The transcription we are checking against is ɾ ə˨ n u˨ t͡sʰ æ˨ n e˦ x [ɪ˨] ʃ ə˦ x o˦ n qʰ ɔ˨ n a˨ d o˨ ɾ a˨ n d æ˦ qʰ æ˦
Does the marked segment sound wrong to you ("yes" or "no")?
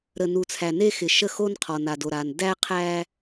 no